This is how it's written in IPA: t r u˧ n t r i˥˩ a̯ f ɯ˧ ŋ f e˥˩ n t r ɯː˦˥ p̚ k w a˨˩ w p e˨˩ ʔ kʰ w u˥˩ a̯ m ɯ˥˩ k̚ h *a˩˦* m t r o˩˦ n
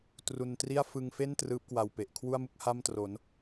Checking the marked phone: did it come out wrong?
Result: yes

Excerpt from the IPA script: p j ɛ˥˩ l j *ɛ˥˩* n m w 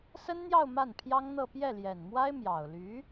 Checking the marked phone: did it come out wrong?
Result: yes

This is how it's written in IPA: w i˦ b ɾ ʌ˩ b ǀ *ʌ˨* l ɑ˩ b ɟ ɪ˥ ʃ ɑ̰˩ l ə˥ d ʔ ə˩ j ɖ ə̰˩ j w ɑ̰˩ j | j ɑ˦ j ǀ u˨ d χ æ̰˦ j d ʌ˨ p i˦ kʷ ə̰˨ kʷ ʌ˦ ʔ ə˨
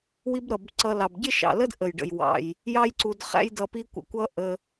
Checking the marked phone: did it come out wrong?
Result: no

